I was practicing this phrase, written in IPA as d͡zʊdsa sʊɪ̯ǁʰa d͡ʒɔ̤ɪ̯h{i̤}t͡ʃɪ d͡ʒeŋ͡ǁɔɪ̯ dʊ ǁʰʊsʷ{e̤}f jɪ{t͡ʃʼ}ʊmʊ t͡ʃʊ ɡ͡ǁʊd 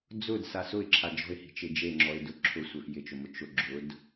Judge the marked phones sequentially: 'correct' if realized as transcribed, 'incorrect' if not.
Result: correct, incorrect, incorrect

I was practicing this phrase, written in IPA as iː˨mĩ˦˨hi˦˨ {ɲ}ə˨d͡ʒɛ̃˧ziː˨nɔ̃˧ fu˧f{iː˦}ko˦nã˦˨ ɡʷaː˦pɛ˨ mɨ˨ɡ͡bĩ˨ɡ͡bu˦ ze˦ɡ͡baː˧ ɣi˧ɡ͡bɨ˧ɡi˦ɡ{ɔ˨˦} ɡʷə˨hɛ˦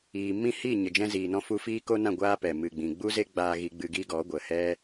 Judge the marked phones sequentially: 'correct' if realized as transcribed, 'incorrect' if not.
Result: correct, correct, correct

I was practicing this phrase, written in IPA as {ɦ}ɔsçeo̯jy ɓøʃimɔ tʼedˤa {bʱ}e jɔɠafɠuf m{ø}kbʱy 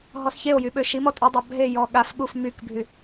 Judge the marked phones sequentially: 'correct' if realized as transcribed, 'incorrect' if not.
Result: correct, correct, incorrect

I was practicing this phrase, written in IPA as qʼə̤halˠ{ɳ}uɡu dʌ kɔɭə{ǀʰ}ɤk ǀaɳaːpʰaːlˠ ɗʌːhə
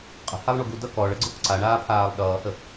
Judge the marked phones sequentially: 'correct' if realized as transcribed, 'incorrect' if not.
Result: correct, incorrect

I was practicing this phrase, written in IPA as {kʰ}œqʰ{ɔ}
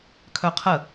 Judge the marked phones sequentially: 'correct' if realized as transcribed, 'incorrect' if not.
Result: correct, incorrect

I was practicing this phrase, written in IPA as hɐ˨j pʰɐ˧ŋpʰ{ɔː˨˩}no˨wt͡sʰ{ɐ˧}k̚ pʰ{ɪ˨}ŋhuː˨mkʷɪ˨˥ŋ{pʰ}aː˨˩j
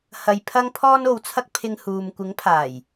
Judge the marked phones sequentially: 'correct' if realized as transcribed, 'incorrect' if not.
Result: incorrect, correct, incorrect, correct

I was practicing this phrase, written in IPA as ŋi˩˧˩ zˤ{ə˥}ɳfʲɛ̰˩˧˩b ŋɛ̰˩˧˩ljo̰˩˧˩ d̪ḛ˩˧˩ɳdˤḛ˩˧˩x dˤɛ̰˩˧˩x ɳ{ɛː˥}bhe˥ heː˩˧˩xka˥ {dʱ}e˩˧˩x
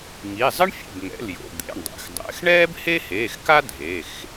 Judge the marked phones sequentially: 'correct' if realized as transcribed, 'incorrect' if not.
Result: incorrect, correct, correct

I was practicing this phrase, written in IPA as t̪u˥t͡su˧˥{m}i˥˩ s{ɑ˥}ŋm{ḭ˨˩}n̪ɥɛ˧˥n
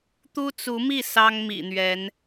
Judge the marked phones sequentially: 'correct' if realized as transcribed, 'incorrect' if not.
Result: correct, correct, correct

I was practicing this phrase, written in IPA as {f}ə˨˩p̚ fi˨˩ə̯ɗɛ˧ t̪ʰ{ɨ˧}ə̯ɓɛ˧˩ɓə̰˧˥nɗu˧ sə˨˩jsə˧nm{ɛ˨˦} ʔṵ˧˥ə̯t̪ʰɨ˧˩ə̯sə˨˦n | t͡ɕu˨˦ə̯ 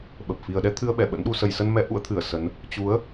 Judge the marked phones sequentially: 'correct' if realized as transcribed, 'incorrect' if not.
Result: incorrect, correct, correct

